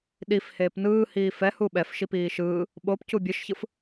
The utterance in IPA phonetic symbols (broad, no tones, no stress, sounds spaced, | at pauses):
ɗ i f h eː p n ɯː h iː f ɛ h u ɓ ɛ f ʃ i p iː ʃ ɯː | ɓ o p c u bʲ ɯ ʃ ç ɯ f